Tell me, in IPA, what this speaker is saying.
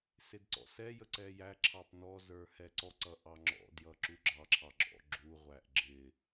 sɪdǀɔ̰sɛjə ǀɛjæǁʰɑp nɔzə˞ hɛǀɔǀʌ ʔɑŋ͡ǁɔ̰djʌ ǁuɡ͡ǁɑǁʰɑ ɡ͡ǁɔ̰ɡ͡ǁuʁʷæʔ ɡ͡ǁɪ

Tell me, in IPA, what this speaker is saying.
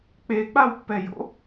k͡pek͡pawpːɛjo̰

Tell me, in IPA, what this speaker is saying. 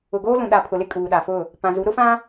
ʊ˨ɡoː˦ lũ˨ɗa˨pʰʊ˨lɪ˦ kʼuː˨ɗa˨fʊ˦˨ | pã˨zu˨˦ɾʊ˦fã˦

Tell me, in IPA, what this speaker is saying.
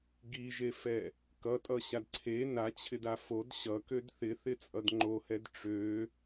ɡiʒefɛ | kʌtʼʌɕad ǀʰe nat͡ɕʰɪda fod ɕʌkød θɪθɪt͡sʼʌd ŋ͡ǃohɛd ʈ͡ʂø

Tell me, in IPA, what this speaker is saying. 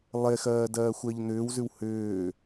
lˠexɜːdɜːxʷɜʎ n̪ʏːwzʉw hʏː

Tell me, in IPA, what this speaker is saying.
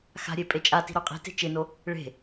xa̤ɾʲe pʼet͡ʃʼati̤ ɾoqʼi̤te̤ t͡ʃɪno | ɭe̤

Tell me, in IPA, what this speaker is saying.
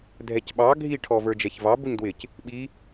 dʱɛcɓɑ ɡʱi ʈʰɔvə˞d͡ʒɛçvɑ buɲdwɪc | ɓi

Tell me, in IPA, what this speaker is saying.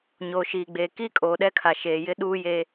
ɲoː˨ʃiː˨ɡ͡beː˨ kiː˦kʼoː˨ɗɛ˦kʰa˨ ʃeː˨jɪ˦ ɗuː˦je˦

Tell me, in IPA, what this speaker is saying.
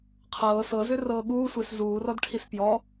qʰɤː sɤzʏrɤː ɠuːsʷes zuːrɔdʈʰis pjɔ

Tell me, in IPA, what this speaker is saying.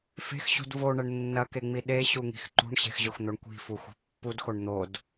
fe̤xɕṳd voɳɐɳ nːɐkeŋ͡mi ɗeɕuŋi̤x ǃṳɳɕe̤xʑoxn̪oɳ kʷi̤fuxʷi̤ pːudxoɳ n̪od

